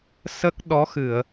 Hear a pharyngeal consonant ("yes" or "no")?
no